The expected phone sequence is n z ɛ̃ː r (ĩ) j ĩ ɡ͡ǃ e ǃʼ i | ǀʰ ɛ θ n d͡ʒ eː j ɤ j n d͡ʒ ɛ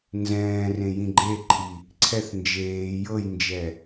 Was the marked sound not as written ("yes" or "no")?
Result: yes